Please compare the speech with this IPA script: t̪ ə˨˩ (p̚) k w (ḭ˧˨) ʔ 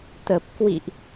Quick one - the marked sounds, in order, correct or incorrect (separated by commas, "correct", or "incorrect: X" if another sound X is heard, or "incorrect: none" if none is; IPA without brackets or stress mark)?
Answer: correct, correct